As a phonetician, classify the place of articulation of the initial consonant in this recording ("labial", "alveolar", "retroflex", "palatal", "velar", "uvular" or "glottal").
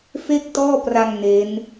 labial